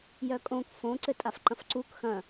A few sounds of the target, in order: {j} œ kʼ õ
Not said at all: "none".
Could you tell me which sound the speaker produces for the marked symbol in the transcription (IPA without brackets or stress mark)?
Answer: j